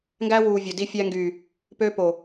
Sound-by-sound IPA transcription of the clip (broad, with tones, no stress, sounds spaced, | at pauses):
ŋ ɡ æ˦ w uː˨ vʲ o˨ d i˦ fʲ æ˦ ŋ ɡ yː˨ | p ø˦ p o˨